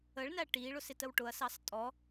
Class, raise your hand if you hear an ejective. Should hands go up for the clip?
yes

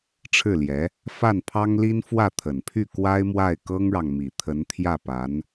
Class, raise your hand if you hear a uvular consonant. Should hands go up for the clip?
no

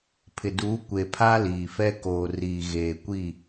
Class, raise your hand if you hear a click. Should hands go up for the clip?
no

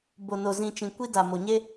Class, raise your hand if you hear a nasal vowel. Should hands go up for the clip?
yes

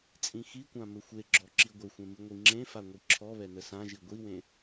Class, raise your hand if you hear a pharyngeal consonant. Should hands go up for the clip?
no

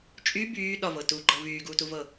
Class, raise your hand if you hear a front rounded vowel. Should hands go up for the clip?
yes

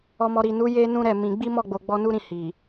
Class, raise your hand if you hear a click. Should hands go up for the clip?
no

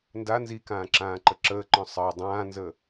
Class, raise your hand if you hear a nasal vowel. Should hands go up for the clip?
yes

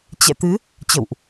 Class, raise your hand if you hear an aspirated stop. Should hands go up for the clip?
no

